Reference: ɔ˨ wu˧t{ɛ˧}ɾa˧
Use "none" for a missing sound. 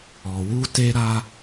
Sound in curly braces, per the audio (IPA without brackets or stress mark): e˧